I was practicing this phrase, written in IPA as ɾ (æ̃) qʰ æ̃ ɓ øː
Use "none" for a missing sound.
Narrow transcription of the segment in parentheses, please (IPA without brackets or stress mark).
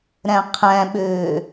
æ̃